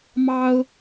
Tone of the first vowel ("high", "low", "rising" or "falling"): high